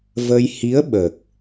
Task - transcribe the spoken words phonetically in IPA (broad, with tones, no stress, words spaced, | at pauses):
və˧j hi˧˥ə̯ɓə˨˩k̚